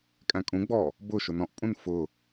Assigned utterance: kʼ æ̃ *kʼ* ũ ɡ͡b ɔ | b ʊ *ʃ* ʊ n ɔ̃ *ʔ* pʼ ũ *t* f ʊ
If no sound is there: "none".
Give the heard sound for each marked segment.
kʼ, ʃ, ʔ, n

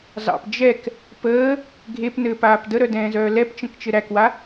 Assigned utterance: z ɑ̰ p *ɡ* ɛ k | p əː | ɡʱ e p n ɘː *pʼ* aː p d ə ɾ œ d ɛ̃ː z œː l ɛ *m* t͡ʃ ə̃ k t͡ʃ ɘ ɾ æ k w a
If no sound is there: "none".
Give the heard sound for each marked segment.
d͡ʒ, p, p

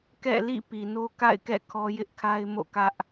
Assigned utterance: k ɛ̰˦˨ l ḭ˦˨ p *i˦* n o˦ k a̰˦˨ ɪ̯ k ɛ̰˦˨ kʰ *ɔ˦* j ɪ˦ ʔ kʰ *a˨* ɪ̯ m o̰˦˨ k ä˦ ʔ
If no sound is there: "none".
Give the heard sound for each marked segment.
i˨, ɔ˦, a˦

